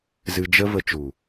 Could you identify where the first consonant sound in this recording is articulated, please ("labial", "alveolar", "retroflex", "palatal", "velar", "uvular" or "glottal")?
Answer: alveolar